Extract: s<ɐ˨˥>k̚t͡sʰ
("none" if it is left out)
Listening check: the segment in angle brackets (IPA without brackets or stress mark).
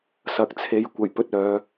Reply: ɐ˨˥